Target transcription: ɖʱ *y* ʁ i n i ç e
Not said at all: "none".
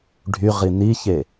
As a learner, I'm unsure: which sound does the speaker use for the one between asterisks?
y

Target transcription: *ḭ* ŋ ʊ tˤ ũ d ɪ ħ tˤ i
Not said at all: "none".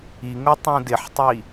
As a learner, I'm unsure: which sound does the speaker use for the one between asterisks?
i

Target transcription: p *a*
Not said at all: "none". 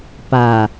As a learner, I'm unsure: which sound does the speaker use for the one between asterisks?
a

